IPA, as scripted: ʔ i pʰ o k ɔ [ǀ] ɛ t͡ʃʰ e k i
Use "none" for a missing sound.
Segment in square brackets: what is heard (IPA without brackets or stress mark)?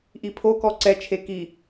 ǀ